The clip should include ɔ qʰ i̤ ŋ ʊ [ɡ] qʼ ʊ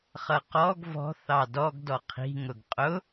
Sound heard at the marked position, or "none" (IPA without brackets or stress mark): ɡ